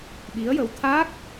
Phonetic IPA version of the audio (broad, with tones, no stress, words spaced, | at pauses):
ɓi˧˥ə̯jə˧˥w t̪ʰaː˦˥k̚